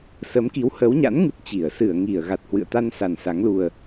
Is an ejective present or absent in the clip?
absent